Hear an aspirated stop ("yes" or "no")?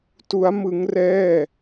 no